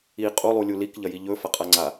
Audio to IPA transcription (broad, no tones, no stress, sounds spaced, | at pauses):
i qʼ u lˠ u lʲ u l i k ʎ ɐ j i ʎ ɵ f ɐ qʼ a ŋ͡ǀ a